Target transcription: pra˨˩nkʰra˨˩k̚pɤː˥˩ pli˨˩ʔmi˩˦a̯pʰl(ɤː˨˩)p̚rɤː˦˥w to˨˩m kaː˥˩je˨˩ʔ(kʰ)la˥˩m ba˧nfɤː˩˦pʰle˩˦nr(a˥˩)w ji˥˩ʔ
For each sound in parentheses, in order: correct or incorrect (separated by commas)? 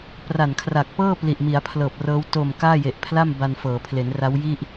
correct, incorrect, incorrect